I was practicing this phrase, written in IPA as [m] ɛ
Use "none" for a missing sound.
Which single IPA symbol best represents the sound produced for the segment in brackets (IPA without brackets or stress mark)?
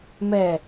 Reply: m